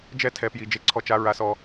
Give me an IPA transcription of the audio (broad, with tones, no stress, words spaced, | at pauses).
d͡ʒɛ˥˨tʰɛ˧pji˧ d͡ʒe˧ǀʰɔ˧t͡ʃa˧ ɹa˧sɔ˧